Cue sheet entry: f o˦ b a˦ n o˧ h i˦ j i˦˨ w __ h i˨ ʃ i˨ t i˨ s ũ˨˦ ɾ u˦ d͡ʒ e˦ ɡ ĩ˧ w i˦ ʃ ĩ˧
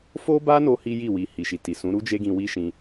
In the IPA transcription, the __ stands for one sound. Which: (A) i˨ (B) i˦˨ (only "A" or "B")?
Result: A